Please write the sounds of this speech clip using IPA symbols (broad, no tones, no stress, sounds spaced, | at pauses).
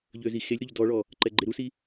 ʎ ø z i x e lʲ ɾ u ʎ d ɔ ɭ ɔ | ǃ ɛ ɡ͡ǃ e ɾ u s i